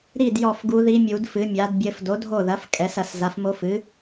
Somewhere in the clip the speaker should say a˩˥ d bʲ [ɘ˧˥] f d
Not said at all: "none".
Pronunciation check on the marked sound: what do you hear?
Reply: ɘ˧˥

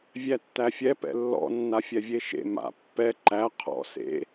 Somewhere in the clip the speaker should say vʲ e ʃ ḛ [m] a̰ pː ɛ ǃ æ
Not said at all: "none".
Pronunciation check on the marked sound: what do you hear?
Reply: m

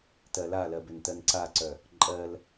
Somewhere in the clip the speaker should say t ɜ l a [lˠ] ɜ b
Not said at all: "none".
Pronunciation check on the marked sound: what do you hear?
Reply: l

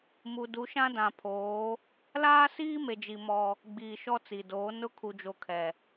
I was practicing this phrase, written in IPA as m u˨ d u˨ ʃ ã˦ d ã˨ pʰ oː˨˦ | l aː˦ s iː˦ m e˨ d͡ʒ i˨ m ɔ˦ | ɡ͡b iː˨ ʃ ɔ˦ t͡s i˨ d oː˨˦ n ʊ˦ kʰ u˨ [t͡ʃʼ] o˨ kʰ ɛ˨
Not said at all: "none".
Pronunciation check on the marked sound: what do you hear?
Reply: d͡ʒ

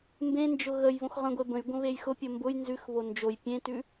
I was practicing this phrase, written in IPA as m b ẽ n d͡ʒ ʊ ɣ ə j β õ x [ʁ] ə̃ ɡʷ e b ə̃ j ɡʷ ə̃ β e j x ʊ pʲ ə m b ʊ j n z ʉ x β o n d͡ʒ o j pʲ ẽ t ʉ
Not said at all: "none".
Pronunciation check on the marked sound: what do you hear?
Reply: ʁ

